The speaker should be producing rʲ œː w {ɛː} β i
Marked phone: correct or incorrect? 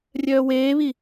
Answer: incorrect